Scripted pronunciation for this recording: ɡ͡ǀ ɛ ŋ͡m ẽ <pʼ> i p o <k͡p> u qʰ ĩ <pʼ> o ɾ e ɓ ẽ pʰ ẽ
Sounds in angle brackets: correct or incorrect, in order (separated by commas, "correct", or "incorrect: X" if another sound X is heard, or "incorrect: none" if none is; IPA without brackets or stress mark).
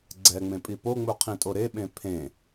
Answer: correct, incorrect: ŋ͡m, incorrect: tʼ